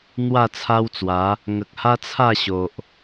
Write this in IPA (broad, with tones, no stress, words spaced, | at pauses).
n̪wa˥˧t͡sʰa˦wt͡swa˨˦ | ŋə˨k̚ha˦t͡sʰa˥˧ɕo˨ʔ